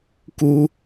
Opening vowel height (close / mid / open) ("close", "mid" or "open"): close